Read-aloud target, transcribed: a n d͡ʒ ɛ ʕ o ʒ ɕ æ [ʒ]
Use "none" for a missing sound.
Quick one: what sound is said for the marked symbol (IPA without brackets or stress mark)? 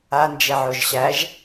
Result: ʒ